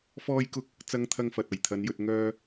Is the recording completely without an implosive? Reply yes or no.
yes